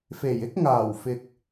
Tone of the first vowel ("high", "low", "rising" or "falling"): low